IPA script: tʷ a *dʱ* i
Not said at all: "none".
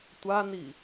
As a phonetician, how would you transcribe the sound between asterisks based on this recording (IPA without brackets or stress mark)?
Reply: n